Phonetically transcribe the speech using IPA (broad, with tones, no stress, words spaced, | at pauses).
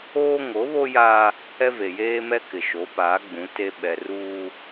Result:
oː˦ŋo˨˦βo˦ jaː˦ | ɛ˦ve˨jeː˦mɛ˦ kɪ˨ʃo˨˦ paː˨˦ɡ͡bũ˨˦ te˦ ɓɛ˨ ruː˦